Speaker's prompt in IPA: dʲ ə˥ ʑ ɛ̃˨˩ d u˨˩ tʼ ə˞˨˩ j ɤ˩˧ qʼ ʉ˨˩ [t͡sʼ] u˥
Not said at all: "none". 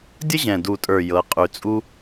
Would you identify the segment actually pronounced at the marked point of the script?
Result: t͡sʼ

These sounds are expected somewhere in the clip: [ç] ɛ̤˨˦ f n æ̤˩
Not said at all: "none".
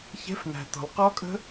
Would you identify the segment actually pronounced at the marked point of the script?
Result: ç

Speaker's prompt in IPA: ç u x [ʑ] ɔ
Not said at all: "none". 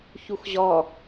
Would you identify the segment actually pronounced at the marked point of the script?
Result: ʑ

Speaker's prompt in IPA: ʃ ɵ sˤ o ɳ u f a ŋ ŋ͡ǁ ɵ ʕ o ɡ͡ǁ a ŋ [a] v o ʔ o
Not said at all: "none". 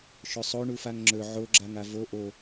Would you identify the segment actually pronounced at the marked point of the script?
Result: a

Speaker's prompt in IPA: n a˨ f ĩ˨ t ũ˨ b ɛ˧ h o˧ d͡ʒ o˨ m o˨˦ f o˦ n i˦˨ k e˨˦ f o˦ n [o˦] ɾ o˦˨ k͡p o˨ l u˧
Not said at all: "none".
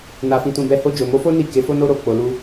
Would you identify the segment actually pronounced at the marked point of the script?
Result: o˦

